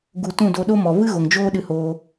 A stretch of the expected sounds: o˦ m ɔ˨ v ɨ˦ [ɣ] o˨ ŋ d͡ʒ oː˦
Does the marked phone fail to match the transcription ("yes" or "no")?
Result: no